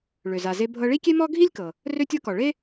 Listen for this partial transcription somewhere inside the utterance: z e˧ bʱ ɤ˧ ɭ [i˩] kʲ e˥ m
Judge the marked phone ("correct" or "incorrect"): incorrect